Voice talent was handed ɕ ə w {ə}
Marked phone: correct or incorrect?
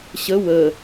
correct